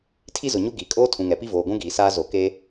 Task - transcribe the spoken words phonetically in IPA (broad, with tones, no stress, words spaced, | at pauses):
tʰi˦zʊ˨ɲu˦ ɡi˨˦ kʼoː˦tʰũ˨ŋɛ˨pi˦ voː˨ɡʷũ˦ɡiː˨saː˦ zo˨ke˦